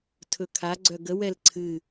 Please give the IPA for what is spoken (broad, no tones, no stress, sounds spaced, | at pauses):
tʰ ɵ kʰ a ɡ͡ǀ œ ɡ ə w ɛ l ǀʰ ɨ